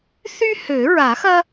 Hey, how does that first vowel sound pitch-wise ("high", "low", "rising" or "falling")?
high